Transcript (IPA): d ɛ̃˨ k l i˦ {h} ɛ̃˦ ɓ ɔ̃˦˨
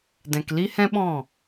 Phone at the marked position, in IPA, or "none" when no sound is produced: h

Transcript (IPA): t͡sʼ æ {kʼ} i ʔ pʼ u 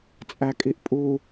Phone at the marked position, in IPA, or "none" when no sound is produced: kʼ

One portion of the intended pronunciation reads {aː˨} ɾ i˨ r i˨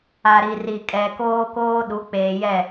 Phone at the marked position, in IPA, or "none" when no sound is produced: a˨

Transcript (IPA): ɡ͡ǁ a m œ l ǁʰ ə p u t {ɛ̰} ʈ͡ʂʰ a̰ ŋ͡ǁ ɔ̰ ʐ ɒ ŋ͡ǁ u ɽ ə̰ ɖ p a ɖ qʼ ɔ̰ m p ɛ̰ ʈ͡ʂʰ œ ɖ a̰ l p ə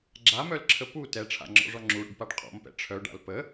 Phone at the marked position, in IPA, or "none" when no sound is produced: ɛ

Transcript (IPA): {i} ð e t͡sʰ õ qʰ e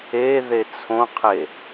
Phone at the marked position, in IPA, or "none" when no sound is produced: e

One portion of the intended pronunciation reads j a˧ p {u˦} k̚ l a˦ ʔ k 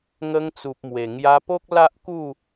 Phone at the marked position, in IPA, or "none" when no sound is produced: o˦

